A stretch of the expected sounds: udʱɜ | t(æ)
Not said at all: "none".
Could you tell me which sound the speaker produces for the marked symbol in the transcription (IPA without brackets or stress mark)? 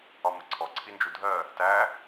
æ